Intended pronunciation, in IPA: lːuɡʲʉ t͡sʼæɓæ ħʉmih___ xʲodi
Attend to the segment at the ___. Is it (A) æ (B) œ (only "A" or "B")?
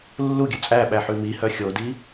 B